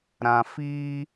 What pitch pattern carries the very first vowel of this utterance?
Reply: low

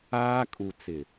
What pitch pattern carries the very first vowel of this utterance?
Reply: high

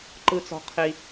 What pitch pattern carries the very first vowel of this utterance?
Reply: low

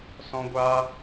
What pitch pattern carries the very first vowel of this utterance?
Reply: high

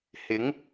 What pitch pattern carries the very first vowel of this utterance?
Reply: rising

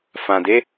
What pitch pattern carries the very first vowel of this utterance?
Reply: low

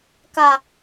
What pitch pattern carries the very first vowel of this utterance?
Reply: low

